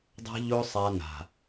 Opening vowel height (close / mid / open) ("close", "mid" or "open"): open